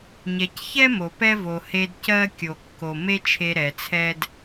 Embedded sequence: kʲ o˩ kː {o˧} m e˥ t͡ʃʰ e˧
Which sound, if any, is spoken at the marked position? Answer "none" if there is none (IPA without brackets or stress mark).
o˩